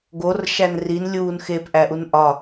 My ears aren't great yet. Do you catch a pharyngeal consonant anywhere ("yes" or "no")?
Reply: no